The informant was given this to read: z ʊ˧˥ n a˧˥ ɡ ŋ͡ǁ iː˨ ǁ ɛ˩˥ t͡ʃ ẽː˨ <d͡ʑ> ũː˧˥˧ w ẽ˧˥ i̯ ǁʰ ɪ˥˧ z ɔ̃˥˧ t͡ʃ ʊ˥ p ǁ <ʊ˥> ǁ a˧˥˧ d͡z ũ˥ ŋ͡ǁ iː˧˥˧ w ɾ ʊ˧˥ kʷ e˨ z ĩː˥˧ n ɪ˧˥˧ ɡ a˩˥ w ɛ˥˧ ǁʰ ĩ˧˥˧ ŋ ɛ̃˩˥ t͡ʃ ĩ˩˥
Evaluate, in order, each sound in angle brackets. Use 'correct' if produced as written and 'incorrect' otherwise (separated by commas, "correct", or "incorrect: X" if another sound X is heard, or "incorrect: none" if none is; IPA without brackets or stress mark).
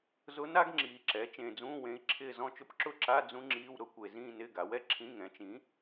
incorrect: d͡z, incorrect: ʊ˥˧